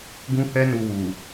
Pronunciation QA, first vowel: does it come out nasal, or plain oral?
nasal